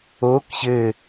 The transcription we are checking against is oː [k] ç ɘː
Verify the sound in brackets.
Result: correct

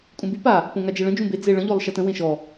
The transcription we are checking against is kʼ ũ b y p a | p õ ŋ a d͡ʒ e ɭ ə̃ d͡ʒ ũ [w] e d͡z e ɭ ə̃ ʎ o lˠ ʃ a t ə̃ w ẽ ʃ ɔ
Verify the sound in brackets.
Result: incorrect: b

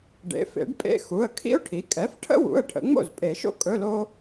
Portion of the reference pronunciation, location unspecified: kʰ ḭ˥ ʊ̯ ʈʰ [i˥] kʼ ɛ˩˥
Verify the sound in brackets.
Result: incorrect: i˩˥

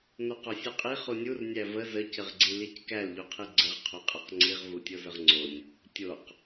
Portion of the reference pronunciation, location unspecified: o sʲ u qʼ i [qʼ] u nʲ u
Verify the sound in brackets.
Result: incorrect: χ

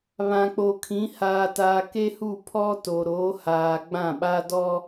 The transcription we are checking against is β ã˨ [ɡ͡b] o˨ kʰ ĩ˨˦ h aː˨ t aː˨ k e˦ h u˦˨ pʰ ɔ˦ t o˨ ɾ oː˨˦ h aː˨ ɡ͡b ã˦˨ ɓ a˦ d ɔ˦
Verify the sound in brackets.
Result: incorrect: k͡p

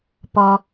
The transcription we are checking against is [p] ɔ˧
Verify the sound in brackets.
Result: correct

